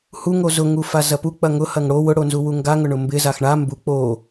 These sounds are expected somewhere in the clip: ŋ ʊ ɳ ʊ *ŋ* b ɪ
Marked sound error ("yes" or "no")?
yes